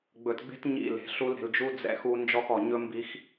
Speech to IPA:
ɡ͡b ɵ˨ t ɡ͡b e̤˦ t ɲ ḭ˦˨ l e̤˨ ɬ u˦ l ɾ e̤˨ l d͡ʒ u˦ d͡z ɛ̰˦ x u˦ n d͡ʒ ɔ˦ x ɔ˨ ɲ ɵ˦ m b i˦ x

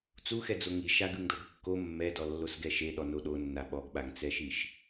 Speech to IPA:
t͡s u x ɛ d͡z o ŋ i ʃ a ɡ ɯ ŋ d ɤ ɡ kː o mː ɛ d ɔ lː o s ɡ ɛ ʃ e ɗ ɔ n o ɗ o nː a ɓ ɔ ɡ ɓ a ŋ t͡s ɛ ʃ i ʃ

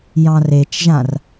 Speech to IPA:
j ɑ̃ r e t͡ʃ ʒ ã r

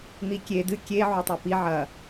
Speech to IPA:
n̪ i kʲ e d ɨ kʲ e ʕ u tˤ a p i ʕ ɐ

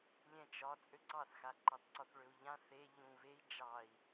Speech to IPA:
lʲ ɛ̃ t͡ʃ ɒ t͡sʼ ø ǀ ɑ θ x a ǃ ɑ t ǀ ɒ θ ɭ ø u̯ ʎ ã θ e ʎ ũ β e i̯ d͡ʒ ɑ i̯

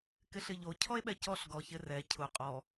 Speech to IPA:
k ɪ ɬ ɪ ʎ o cʰ ɔ e̯ ɓ ɛ c ɔ ɬ ɡ ɔ ç ɪ r ɛ cʰ ʊ qʼ ɔ

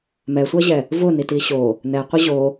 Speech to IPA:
m ɛ sʷ ɜ ʑ ɛ | v ʊ n i t i ɕ o | n ɛ qʷ ɘ ʑ o

